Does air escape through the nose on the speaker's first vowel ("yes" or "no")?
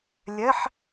no